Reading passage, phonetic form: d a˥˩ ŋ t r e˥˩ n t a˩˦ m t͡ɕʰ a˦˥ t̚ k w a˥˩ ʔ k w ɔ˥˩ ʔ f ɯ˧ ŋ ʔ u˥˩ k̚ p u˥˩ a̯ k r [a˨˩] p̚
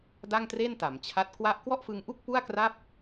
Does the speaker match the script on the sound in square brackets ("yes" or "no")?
no